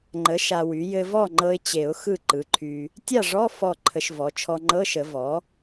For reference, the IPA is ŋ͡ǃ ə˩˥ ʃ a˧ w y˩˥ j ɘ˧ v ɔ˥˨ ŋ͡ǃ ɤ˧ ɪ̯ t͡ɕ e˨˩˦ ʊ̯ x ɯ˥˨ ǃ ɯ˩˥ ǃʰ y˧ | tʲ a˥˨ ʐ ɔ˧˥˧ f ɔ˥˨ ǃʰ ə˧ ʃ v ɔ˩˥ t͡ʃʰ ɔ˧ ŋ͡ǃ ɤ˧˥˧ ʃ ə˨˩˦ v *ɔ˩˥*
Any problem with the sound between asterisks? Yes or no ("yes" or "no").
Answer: no